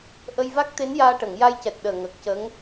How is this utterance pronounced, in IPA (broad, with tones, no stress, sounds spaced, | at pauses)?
ʔ ə˧ j v a˦˥ k̚ t̪ e˧˥ n j aː˧ ʈ ə˨˩˨ ŋ j a˧ j c ɛ˨˩ t̚ ɗ əː˨˩ ŋ ə˨˩ k̚ c ə˧˥ ŋ